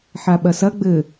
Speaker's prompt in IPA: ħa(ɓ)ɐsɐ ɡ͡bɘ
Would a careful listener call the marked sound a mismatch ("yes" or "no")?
no